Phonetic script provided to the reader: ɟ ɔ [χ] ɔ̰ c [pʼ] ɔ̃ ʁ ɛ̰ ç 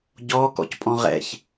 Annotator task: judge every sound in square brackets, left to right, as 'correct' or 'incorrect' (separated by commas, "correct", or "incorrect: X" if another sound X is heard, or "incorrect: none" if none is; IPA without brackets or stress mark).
incorrect: k, correct